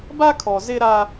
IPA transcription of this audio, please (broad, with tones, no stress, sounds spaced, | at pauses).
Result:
b a˦ kʰ ɔ˨ z ɪ˦ ɾ a˦